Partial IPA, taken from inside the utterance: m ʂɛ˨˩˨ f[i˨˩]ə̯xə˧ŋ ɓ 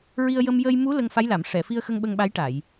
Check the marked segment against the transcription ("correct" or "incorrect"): incorrect